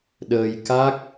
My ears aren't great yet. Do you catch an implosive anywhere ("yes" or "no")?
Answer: yes